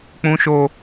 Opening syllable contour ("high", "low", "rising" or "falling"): high